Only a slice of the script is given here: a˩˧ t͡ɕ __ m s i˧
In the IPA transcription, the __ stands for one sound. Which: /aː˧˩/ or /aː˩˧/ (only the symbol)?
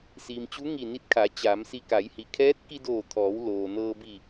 aː˩˧